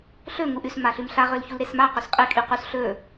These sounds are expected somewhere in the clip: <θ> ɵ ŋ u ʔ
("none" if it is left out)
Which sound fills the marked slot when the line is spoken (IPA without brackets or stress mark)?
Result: ɬ